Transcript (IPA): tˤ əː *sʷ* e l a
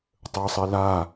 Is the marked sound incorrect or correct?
incorrect